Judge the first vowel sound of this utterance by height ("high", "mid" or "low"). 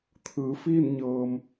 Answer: high